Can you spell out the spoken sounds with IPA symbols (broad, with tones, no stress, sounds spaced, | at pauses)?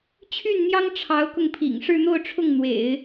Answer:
t͡ɕʰ y˥˩ n n̪ j ɑ˥ ŋ ʈ͡ʂʰ ɑ˧˥ ʊ̯ k ʊ˧ ŋ pʰ ḭ˨˩ ŋ ʂ ɻ̩˥˧ n̪ o˥˧ ʊ̯ ʈ͡ʂʰ ʊ˥˩ ŋ n̪ w ḛ˨˩˦ ɪ̯